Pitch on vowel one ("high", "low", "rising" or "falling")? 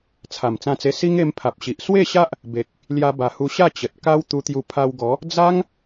low